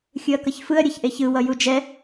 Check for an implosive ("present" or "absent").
absent